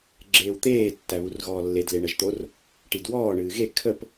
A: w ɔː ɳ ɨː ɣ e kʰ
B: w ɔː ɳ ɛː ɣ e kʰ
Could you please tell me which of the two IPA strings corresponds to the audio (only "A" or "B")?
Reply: A